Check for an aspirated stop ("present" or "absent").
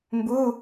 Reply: absent